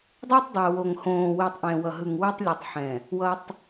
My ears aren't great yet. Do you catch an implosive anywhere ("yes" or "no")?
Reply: no